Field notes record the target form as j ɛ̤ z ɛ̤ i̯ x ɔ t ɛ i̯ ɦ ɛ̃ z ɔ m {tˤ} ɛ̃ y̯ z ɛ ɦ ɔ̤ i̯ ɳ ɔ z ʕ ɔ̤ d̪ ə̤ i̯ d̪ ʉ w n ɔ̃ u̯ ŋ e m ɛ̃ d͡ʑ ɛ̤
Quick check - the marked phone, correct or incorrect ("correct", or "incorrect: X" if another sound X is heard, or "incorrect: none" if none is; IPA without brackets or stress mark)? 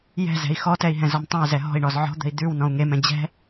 correct